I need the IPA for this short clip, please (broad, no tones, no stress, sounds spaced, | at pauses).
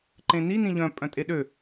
ǃ ẽ n i n ĩ ʎ œ̃ pʼ œ̃ tʼ e ɗ ø